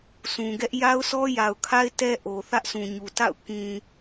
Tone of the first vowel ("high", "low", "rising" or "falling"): low